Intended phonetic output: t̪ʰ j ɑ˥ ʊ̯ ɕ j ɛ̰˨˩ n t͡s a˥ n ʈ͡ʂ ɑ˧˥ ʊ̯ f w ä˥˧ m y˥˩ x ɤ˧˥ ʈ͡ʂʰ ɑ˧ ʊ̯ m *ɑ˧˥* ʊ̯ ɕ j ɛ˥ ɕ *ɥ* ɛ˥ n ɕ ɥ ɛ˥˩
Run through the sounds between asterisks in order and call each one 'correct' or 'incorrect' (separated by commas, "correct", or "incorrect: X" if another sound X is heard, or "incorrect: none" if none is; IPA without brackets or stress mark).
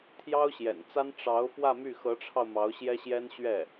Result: correct, incorrect: j